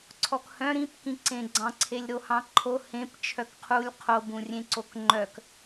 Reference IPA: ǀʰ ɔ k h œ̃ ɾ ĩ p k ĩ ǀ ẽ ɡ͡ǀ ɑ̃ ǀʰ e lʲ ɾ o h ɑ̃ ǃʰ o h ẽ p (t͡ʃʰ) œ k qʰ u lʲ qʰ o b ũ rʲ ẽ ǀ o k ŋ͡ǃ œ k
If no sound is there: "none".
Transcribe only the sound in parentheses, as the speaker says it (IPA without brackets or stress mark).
t͡ʃʰ